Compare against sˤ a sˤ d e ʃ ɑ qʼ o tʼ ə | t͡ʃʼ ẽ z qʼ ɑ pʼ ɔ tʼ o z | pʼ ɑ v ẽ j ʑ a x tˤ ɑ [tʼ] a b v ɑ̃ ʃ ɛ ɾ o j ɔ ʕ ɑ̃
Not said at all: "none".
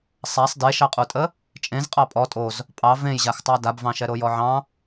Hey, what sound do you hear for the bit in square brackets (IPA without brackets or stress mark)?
d